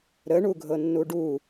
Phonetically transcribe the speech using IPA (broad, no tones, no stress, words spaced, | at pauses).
ɾəɳuɡʱɤnːu ɖu